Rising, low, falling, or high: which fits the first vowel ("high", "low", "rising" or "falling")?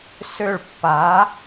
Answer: falling